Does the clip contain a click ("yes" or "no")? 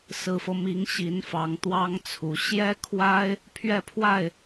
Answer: no